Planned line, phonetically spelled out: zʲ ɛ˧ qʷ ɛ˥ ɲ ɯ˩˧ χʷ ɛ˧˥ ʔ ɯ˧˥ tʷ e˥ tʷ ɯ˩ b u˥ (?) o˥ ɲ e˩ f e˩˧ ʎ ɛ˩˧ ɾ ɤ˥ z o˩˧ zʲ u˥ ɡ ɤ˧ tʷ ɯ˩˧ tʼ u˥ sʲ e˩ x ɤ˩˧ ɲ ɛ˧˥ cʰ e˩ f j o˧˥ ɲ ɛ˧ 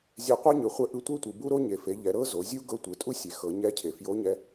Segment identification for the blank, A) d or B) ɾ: B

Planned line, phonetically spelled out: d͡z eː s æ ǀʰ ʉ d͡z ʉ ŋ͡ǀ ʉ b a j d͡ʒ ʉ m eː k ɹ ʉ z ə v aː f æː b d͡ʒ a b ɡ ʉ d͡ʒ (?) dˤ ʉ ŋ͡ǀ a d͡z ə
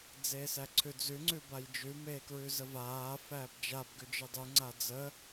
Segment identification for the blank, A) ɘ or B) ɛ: A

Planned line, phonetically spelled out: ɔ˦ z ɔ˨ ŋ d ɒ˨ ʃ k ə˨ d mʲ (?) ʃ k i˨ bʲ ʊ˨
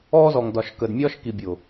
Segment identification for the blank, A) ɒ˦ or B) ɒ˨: A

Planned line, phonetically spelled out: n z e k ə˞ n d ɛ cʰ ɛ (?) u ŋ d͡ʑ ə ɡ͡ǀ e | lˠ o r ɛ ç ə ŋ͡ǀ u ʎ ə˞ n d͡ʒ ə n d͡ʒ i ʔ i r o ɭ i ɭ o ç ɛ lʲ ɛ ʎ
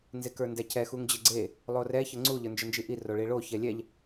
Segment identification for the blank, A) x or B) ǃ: A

